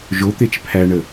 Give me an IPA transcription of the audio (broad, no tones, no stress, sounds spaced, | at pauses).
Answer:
ʒ o t̪ e t͡ʃ pʰ æ ɳ ə